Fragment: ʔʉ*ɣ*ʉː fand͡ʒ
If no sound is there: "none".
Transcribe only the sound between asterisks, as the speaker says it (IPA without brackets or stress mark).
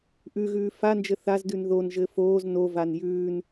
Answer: ɣ